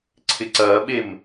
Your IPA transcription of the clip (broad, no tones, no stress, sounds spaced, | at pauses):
ǀʰ ɪ ǀ ɐː ɓ e m